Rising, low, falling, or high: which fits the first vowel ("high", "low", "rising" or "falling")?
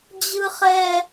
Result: high